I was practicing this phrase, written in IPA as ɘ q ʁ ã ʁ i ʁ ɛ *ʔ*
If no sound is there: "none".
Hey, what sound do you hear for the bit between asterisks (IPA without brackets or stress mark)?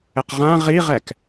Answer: k